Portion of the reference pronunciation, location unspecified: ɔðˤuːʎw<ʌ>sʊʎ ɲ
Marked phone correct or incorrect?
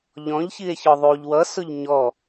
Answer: correct